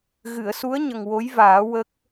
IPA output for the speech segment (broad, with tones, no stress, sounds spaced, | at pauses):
ɣ ɨ˨˩˨ ə̯ s u˧˥ ə̯ ɲ ə˨˩ ŋ w o˧˥ j v aː˨˩˦ w ə˦˥ k̚